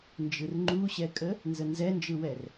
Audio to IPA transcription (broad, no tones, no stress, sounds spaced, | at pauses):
n d͡ʒ ɯ r ŋ͡ǃ u ɕ ɛ kʼ ə | n z ə n z ɛ n d͡ʒ ɯ w ɛ r